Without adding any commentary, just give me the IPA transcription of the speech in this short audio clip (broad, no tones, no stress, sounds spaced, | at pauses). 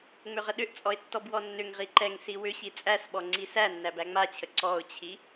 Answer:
ŋ͡m ʏ ʁ ə ɗ ʏ ʔ t͡sʼ ɔ ɪ̯ tː ɔ b w ɔ nː ʏ ŋ ʁ i ǃ ɛ ŋ s i w ʏ ɕ i t͡sʼ æ s ɓ ɔ ŋ͡ǀ i s æ nː æ b æ ŋ͡m a t͡ɕʰ ə ǀ ɔ ʊ̯ t͡ɕʰ i